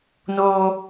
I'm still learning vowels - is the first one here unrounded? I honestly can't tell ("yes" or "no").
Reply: no